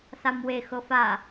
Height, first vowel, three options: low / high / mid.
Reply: low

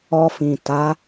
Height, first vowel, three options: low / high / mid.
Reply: mid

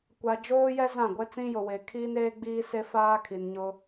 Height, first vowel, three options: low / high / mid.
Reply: low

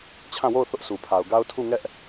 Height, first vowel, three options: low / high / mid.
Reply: low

